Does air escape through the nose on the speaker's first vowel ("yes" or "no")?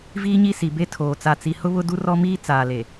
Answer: no